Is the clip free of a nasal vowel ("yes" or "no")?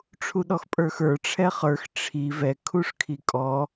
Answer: yes